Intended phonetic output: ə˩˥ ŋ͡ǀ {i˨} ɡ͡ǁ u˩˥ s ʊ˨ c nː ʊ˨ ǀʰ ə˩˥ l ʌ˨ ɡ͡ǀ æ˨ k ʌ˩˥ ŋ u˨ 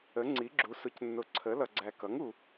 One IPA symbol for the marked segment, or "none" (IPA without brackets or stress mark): i˩˥